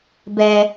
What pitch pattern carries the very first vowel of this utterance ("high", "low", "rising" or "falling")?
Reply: high